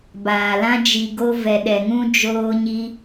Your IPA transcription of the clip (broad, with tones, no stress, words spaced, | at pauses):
baː˨lã˦ d͡ʒi˧ɡo˦ vɛ˧ɗɛ˧ŋũ˦ d͡ʒoː˦ɲi˦